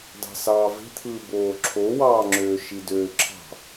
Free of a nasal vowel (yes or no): yes